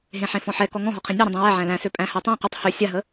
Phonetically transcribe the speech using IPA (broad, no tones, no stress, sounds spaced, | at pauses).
ɦ ẽ ħ ẽ f ɔ̃ ħ ɛ k ɔ ŋ ɔ̃ ɦ ɔ qʰ ẽ nʲ ɔ ɾ ə̃ dˤ ẽ w æ ʕ æ̃ l æ̃ s ø pʼ æ̃ h æ tˤ æ̃ q ø tˤ h ø sʲ a ɦ ə